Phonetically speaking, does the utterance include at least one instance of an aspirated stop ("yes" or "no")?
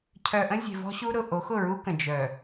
yes